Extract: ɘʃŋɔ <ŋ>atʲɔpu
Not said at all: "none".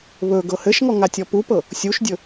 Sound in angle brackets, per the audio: ŋ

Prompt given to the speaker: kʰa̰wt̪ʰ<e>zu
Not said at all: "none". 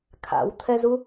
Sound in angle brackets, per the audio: ɛ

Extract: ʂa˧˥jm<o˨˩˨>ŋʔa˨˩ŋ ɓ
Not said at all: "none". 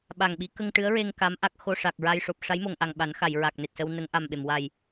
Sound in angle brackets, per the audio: o˨˩˨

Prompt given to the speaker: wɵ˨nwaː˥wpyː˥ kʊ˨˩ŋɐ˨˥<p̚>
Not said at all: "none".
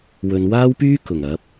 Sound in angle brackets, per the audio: p̚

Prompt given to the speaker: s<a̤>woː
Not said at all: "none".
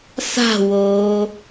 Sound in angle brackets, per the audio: a̤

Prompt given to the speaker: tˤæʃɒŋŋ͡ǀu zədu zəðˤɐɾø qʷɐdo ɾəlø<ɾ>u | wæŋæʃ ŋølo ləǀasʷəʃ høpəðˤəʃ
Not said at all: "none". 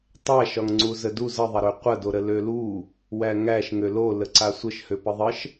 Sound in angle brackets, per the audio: l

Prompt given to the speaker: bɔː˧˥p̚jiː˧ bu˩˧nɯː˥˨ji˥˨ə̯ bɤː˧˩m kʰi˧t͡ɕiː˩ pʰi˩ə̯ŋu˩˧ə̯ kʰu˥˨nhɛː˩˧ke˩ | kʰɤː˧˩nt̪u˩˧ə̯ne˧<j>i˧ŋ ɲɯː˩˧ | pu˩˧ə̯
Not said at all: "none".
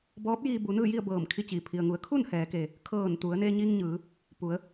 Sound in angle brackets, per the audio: ɲ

